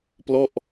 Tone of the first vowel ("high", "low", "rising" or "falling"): falling